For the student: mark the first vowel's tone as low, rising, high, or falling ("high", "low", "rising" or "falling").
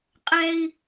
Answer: high